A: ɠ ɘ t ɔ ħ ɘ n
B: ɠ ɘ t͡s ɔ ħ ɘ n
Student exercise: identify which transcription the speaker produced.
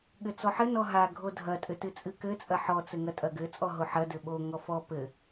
B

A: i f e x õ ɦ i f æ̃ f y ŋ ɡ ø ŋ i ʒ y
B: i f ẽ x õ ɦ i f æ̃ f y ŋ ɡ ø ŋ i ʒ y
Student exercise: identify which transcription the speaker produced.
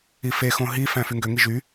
A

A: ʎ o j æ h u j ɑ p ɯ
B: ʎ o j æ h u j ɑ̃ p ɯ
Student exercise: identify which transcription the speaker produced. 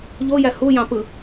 B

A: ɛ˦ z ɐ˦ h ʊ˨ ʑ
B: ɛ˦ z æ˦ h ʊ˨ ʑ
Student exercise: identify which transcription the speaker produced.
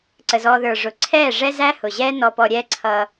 B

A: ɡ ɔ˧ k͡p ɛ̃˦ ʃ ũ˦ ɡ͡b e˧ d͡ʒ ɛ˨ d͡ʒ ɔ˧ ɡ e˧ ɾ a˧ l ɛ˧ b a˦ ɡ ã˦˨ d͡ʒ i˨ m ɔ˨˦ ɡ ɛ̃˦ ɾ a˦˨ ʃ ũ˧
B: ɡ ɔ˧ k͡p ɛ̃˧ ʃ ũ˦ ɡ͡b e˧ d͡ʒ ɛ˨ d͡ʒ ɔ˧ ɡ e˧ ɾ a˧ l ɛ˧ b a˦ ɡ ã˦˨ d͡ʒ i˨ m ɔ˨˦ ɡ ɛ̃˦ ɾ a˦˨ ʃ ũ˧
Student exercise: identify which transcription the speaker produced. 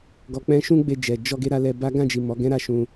A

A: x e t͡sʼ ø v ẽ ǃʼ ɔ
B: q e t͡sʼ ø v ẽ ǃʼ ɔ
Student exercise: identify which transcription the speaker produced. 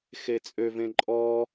A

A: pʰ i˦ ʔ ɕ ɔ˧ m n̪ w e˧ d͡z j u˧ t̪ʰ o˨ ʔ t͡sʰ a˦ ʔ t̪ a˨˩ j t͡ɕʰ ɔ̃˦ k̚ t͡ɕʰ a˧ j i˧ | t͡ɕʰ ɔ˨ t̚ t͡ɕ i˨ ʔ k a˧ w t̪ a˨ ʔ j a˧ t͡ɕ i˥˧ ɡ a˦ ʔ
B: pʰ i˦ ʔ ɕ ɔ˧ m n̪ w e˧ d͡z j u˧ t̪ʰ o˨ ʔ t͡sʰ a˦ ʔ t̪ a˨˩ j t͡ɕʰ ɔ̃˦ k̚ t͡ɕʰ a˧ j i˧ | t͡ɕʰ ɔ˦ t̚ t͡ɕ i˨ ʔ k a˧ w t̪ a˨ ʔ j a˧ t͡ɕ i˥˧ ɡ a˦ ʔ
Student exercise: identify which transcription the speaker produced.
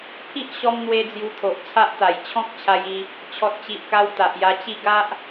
A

